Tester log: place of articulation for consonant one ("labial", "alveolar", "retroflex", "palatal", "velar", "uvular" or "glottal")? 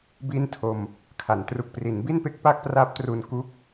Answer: labial